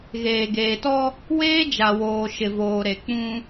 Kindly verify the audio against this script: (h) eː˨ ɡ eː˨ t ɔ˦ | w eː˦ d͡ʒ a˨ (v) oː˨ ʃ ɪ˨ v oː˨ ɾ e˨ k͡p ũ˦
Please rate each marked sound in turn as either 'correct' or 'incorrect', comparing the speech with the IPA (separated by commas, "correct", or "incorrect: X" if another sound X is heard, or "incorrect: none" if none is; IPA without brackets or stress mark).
incorrect: ɣ, incorrect: w